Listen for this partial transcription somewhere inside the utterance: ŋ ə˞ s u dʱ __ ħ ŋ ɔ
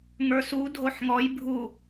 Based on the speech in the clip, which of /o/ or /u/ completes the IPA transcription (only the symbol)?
o